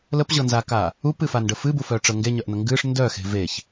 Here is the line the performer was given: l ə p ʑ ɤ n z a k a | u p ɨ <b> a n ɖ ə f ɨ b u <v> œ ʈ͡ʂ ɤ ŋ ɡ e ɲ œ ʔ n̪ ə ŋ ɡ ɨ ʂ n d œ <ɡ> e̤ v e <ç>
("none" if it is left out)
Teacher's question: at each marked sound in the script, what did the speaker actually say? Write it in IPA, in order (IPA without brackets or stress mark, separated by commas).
f, f, x, ç